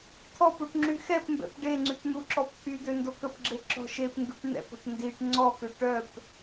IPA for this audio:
t̪ʰɔpuʈ ŋ͡ǁyxɛpmbɛ̰p ɖeŋ͡ǀypn̪uǁɔp t̪ʰyd̪ø ndokəpɡ͡ǁe ǁɔ̤ʃepŋɡyʈ n̪ɛ̰pɔ̤ʈ ndiʈ ŋ͡ǀɔkø ʈœp

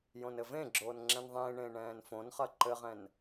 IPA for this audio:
jõnɘvẽɡ͡ǁoːn ŋ͡ǁɛ̃nðˤẽːɳẽː ɳɛ̃ːnfõnχɐ ǃɘʁɛ̃n

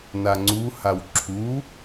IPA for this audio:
naŋ͡ǀuhaw ǁʰu

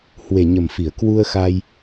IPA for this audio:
hwe˨˩ɲə˨˩mfi˧˩ə̯ kwu˧ə̯xa˧j

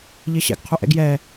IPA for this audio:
ʎɪːɕɛ̰ɡ qʰuʔɛ̰ɡjɛː

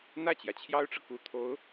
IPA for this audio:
n̪ä˥˩t͡ɕjä˩t͡ɕʰjɑ˥ʊ̯ʈ͡ʂɤ˨ ku˨˩t̪ʰo˧˥ʊ̯

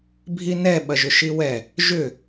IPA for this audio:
bʱinɛ ɓɐʒʏʃiwɛ | ʒʏ

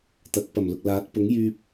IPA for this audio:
t̪ɐ˨˥k̚pɐ˨˩mlʊ˨k̚ laː˨˥t̚pʊ˨˥ŋ jyː˧p̚

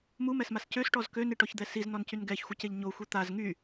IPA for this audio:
mumɛsmas cøsʈɔz køniʈɔçd̪ɛ siznɔncyn ɡɛçxʷəceʎ ɲoxʷi t̪az ŋy

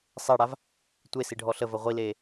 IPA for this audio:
sˤeɽav | tʷesiɖʱɔ ɬəvə ʁʷileː

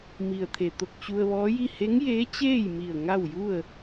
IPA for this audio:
mi˩ə̯t̪ʰe˩t̪o˧˩k̚ t͡ɕu˧ə̯ʋɔː˧˥ji˥˨ he˧˥ŋjeː˧˥t͡ɕeː˥˨jmi˧˩ə̯ ŋa˥˨wju˥˨ə̯

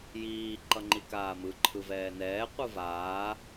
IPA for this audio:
jiː ǃʌŋ͡ǃikaːmɯ ǃʰɯvɛːnɛː qʷɯvaː

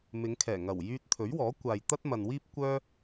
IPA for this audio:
mɪ˨˧ŋkʰɛː˨˩ŋɐ˨˩w jyː˧t̚t̪ʰɵ˨˥ɥwɔː˨˥kʷaː˨j t̪ɐ˥t̚mɐ˨nwiː˥p̚ kʷœː˥

